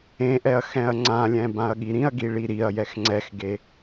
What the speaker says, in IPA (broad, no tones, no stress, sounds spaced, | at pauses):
ẽ ʔ ɛ ɐ̯ x ɛ̃ ɐ̯ ŋ͡ǀ ã lʲ ɛ̃ b ã ɐ̯ ɠ i ɾ ĩ ɐ̯ ɡ i ɭ i ɾ i ɐ̯ j ɛ x ŋ͡ǀ ɛ x ɡ e